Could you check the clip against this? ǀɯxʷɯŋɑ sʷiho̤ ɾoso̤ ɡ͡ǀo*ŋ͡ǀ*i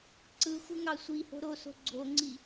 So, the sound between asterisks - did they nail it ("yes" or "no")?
yes